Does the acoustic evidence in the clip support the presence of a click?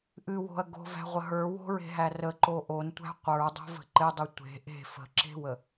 yes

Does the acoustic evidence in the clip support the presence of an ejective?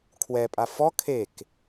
yes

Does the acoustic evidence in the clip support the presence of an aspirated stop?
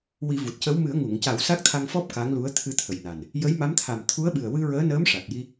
yes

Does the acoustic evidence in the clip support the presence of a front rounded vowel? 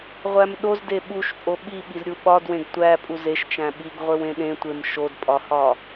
no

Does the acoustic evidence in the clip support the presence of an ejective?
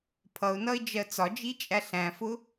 yes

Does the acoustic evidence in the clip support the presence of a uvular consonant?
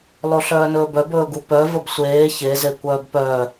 no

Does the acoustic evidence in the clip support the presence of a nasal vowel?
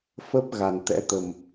no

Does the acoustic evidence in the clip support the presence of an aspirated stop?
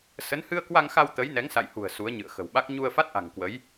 no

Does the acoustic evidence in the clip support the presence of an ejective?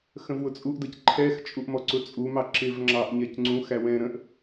yes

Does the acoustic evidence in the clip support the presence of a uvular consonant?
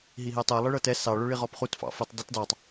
yes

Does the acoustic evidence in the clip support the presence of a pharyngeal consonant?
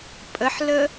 yes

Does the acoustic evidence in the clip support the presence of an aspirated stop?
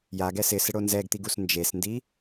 no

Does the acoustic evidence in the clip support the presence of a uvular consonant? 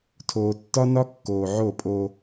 no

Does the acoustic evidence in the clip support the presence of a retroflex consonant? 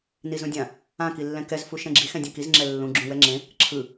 no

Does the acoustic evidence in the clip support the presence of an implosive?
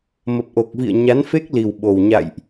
yes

